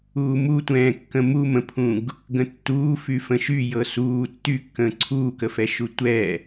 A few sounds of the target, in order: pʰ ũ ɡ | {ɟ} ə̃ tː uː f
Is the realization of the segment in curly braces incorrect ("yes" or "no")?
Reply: yes